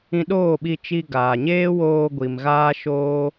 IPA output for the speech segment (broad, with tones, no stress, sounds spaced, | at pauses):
ĩ˧ ɗ oː˦˨ ɓ i˧ t͡ʃ i˧ ɡ aː˨ ɲ eː˦ w oː˧ ɡʷ i˨ m ɣ aː˦ ʃ oː˦